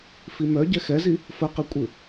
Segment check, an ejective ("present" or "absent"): present